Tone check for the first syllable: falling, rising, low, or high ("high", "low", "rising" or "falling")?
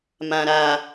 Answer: low